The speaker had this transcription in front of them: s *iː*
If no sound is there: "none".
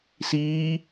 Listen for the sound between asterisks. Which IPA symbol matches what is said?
iː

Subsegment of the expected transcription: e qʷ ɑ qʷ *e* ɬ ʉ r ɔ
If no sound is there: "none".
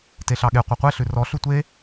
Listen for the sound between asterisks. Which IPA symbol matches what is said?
e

